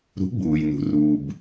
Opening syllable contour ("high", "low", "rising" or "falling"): rising